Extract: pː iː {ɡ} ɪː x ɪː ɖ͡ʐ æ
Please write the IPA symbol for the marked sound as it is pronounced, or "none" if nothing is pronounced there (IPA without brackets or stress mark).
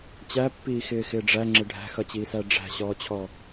x